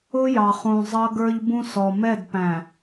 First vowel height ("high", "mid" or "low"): high